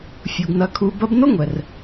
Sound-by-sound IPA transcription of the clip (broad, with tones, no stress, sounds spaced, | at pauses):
fʲ u˨ ɡ n ɐ˧ kʰ u˧ b ɐ˧ b n o˦ ŋʷ ɛ˨ r